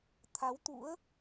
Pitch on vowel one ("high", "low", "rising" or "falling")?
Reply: rising